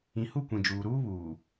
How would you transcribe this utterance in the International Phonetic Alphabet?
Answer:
ĩ˨ h u˦˨ kʷ ĩ˨ d͡ʒ uː˨ ɾ uː˦ β uː˨

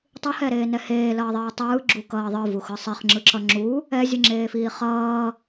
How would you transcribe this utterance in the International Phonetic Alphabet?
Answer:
tˤ ɯ h ɛ ɾ eː n ɛ h eː l ʌː ðˤ iː tˤ ɯː ɡ͡ǁ u k ʌː ðˤ ɯ v u x ɯ sˤ i χ ŋ͡ǁ ɯ ǁ ʌ ŋ͡ǁ u | ɛ zʲ ɯ ŋ͡ǁ eː f iː χ ʌː

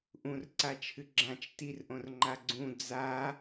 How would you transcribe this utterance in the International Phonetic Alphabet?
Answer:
ʔ ũ r ǀ a t͡ʃʰ ɨ ɡ͡ǁ ã t͡ʃ t i r ʔ õ r ŋ͡ǃ a ɡ͡ǀ ũ d͡z a

